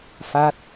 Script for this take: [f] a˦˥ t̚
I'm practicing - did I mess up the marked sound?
no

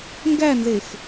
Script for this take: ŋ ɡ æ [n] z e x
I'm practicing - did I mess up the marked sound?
no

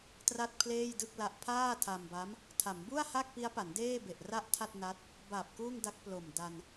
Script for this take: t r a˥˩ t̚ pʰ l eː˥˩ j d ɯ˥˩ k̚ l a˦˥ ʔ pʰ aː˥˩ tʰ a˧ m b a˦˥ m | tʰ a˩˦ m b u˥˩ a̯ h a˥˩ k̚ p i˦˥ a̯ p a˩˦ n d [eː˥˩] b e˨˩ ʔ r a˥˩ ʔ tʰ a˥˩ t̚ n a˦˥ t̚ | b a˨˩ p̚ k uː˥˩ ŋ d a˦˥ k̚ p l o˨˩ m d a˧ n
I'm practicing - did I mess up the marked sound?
no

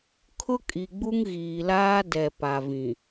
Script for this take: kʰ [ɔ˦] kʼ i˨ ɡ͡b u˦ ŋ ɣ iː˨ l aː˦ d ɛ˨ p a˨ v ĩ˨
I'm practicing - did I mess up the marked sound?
yes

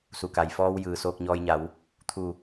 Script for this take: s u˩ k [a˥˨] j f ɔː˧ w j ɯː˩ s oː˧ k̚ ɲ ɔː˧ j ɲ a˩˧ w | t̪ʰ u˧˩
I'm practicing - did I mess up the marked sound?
yes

